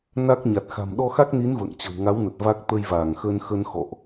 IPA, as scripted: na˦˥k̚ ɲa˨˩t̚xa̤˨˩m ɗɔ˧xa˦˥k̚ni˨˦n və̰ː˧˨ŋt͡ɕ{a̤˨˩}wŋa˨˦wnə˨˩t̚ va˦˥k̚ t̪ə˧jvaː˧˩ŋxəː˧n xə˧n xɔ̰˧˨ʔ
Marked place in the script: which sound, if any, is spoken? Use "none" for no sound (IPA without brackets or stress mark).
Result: ə̤˨˩